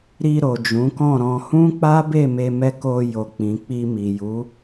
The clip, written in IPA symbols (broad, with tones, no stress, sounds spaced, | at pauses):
ɾ i˧ ɾ o˨ d͡ʒ ũ˨˦ k ɔ̃˦˨ ɾ ɔ̃˧ h ũ˦ k͡p a˦ b e˦˨ m e˧ m ɛ˧ k o˧ j o˨ k͡p ĩ˨ k͡p i˧ m i˨ j u˨˦